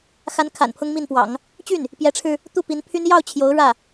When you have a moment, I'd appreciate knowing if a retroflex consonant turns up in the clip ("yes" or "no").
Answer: yes